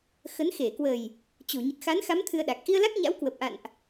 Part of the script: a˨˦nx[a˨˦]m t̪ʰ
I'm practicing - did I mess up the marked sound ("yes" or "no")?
no